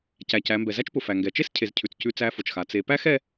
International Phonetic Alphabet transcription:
c æ˩ c æ˩˧ m b ɛ˩ z æ˥ t͡ʃ p ʊ˩ f æ˩ ŋ ɡ ɛ˩ t͡ʃ e˥ s cʰ e˩˧ z cʰ ʉ˩ t͡s c ʉ˧ t͡s æ˧˥ f ʊ˩ t͡ʃ x a˩˧ t͡s e˩˧ p æ˥ x ɛ˥

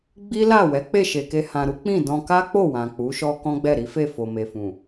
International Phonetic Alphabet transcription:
ɡ͡b i˦ l a˦˨ w ɛ˨˦ k͡p e˦˨ ʃ e˨ k e˧ h ã˨ ɾ u˨˦ k͡p ĩ˦˨ d ɔ̃˧ k a˦ k͡p o˦˨ w ã˨ k͡p u˨˦ ʃ ɔ˦ k ɔ̃˦ ɡ͡b ɛ˦˨ ɾ i˨˦ f e˦˨ f o˨ m e˨ f ũ˨

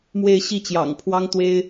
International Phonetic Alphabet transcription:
m w e˥˧ ɪ̯ ɕ i˥˩ t͡ɕ j ɑ̰˨˩ ŋ pʰ w ɑ˥ ŋ t̪ w e˥ ɪ̯

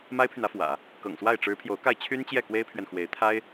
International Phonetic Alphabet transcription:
m a˥ ɪ̯ pʰ y˨ n ä˥ f w ä̰˨˩˦ | k ɤ̰˨˩ ŋ s w a˥˩ ɪ̯ ʈ͡ʂ ɻ̩˧˥ pʰ j o˧˥ ʊ̯ k a˥˩ ɪ̯ t͡ɕʰ y˥ n t͡ɕ j ɛ˥˩ k w e˥ ɪ̯ pʰ ɥ ɛ˨ n x w e˧˥ ɪ̯ t̪ʰ a˥ ɪ̯

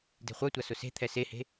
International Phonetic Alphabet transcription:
d e̤ χʷ œ tʷ a s ʊ s e̤ t̪ʰ ɛ s e h e̤

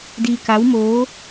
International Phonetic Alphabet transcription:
d iː˧ k a˧˥ w m oː˧˥

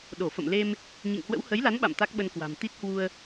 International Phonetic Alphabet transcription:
ɗ o˧˩ f ə̰˧˨ m l e˧ m | ɲ ḭ˧˨ ŋ h w ə̰˧˥ w h ə˨˦ j l a˨˦ n ɓ a̰˧˨ m t̪ a˦˥ k̚ ɓ ə˧ n k w a̤˨˩ m t̪ i˦˥ t̚ h w u˧ ə̯

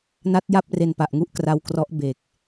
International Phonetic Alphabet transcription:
n a˦˥ t̚ j a˥˩ p̚ r e˧ n p a˨˩ ʔ ŋ u˥˩ ʔ k r a˦˥ w k r ɔ˦˥ ʔ b e˨˩ k̚

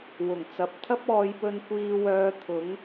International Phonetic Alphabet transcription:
w ʊ˨˩ ŋ t͡s ɐ˨ p̚ t̪ʰ ɐ˥ p̚ ɔː˨˧ j p ɵ˧ n kʷ iː˥ w œː˥ t̪ʰ ʊ˨˥ ŋ

